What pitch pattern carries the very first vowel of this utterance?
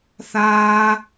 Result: high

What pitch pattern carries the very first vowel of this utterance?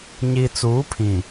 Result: low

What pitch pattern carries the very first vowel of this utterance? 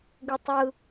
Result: low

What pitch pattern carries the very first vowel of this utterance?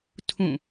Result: falling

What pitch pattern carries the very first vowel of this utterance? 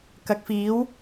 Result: rising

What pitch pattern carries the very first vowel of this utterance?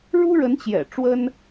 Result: high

